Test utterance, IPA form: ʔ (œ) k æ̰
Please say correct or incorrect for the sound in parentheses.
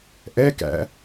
incorrect: ɛ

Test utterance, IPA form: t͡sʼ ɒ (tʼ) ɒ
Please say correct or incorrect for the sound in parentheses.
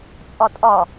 correct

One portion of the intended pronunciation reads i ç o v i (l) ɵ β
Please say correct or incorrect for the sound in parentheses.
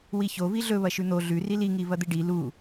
incorrect: ɮ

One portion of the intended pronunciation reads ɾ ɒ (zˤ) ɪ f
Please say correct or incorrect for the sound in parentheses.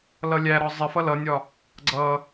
correct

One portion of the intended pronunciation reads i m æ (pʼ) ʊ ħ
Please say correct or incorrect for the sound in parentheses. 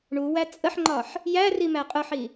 incorrect: qʼ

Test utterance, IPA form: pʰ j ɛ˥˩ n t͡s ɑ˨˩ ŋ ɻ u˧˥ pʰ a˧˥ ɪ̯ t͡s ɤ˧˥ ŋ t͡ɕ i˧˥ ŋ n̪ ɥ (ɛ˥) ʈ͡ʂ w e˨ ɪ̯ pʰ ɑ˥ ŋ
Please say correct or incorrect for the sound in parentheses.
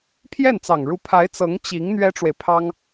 correct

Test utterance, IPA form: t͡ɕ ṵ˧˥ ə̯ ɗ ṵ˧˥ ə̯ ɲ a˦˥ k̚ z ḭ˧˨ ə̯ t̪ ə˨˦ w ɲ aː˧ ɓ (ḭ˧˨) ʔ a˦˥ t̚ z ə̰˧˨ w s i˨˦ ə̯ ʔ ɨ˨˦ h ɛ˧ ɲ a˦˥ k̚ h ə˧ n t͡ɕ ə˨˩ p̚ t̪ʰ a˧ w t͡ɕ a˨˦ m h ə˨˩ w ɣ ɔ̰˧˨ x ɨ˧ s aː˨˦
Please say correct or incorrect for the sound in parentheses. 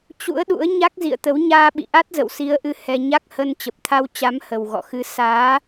correct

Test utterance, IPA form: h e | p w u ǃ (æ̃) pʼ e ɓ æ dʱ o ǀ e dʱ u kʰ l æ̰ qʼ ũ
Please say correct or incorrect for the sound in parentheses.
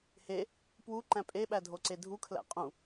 correct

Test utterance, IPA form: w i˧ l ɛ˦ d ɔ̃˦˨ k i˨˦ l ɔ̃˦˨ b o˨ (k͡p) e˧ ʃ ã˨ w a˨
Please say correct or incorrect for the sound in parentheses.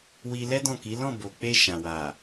correct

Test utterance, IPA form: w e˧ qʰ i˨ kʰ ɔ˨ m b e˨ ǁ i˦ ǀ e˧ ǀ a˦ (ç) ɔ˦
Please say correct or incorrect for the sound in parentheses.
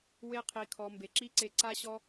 incorrect: ɕ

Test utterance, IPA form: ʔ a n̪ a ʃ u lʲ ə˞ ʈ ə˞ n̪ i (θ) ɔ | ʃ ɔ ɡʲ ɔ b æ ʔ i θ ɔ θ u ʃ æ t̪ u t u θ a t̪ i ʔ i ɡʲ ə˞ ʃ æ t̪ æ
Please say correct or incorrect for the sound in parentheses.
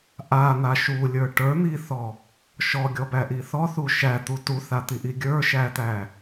correct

